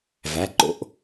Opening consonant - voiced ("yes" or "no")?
yes